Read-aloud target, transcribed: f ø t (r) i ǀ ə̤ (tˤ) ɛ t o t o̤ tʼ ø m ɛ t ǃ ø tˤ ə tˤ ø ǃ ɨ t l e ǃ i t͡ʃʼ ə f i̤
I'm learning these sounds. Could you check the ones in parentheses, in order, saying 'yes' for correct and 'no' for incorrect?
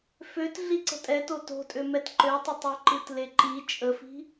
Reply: no, no

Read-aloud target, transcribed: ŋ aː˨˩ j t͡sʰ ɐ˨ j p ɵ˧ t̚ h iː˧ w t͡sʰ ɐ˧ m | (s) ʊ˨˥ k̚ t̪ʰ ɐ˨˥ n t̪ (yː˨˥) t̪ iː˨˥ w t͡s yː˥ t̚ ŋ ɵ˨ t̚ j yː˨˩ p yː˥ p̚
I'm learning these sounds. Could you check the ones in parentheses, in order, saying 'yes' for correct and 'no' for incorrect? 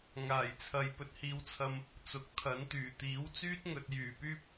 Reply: no, no

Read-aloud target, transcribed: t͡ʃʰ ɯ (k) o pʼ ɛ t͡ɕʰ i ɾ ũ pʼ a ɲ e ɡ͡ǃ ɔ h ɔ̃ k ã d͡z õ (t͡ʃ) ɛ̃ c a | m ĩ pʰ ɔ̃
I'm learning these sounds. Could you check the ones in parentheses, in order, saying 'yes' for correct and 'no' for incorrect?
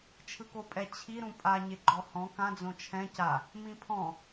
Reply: yes, no

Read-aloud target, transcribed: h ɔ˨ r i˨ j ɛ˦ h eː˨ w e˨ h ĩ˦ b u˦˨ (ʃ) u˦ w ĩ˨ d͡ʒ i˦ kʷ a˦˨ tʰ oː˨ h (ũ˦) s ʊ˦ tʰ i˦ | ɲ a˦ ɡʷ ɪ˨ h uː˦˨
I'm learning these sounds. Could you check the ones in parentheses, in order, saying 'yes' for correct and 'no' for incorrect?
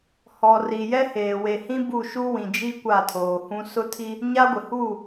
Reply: yes, yes

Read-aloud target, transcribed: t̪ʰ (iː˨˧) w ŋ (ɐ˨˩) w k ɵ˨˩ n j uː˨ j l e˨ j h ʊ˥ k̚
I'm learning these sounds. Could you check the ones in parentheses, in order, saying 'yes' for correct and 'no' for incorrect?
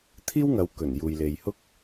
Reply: no, no

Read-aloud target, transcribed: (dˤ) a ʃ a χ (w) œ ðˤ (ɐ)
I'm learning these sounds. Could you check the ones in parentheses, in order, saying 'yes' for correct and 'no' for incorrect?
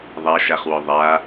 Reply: no, yes, no

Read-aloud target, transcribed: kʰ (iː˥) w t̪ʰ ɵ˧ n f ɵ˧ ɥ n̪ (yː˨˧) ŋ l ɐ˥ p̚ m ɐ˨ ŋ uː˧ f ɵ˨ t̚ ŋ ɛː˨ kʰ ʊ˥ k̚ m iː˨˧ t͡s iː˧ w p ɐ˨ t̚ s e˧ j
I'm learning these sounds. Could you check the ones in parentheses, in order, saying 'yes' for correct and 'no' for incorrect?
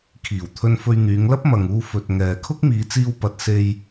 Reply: no, yes

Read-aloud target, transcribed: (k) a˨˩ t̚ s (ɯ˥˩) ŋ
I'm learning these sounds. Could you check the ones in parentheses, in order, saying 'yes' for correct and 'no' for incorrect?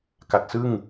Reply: yes, yes

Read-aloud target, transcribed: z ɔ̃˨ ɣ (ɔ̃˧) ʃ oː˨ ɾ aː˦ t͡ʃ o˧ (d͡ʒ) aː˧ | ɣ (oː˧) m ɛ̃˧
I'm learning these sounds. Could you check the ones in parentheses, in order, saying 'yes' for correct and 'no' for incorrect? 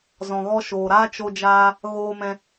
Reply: no, yes, yes

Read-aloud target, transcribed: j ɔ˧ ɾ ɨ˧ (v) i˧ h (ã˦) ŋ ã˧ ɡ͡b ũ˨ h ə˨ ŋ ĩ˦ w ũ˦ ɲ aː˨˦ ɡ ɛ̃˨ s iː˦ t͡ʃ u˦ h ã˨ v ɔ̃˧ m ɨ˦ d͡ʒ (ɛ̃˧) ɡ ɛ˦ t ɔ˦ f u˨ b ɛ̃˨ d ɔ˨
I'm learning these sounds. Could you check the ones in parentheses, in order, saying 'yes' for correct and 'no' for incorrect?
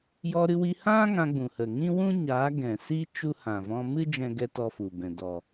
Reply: no, yes, no

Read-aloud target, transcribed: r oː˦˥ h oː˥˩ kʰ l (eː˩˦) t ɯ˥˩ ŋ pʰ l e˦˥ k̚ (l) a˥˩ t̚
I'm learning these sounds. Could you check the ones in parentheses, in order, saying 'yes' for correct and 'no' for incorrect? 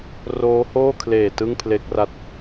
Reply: no, no

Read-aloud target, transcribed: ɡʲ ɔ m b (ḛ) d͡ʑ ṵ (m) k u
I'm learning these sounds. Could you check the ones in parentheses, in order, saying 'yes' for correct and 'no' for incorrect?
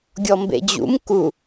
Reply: yes, yes

